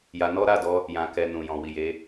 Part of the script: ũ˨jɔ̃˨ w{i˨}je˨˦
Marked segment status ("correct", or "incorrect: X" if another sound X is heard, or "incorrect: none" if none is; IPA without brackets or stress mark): correct